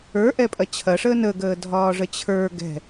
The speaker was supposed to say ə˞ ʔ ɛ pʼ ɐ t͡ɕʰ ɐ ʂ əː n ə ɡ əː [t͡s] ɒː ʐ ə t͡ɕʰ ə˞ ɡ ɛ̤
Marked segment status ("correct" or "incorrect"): incorrect